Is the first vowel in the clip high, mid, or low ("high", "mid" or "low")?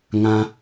low